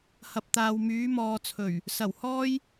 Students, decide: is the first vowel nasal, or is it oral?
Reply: oral